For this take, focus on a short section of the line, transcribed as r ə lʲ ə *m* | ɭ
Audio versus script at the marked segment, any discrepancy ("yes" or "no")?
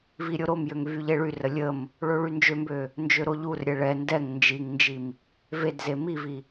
no